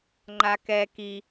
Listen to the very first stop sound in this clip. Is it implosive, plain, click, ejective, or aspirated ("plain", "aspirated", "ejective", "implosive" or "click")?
click